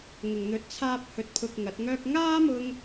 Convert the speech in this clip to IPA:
ŋ ʊ˨ ŋ n̪ ɵ˨˥ t̚ t͡sʰ aː˥ p̚ h ɵ˧ t̚ pʰ ʊ˧ k̚ ŋ ɐ˨˥ t̚ ŋ œː˥ k̚ ŋ aː˥ m ʊ˧ ŋ

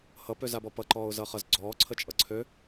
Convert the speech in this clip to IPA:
h ʌ p ø z a b ɔ p ʌ ǃ ɔː ʊ̯ z ʌ χ ʌ z ɡ͡ǀ ɔː ǀʰ ə t͡ʃʼ ʌ ǀʰ ø

